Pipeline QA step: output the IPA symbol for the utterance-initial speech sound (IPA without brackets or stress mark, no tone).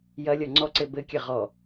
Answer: j